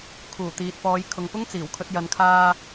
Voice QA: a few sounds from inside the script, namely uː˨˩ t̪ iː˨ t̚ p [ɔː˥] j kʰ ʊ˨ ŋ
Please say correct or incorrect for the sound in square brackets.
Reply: incorrect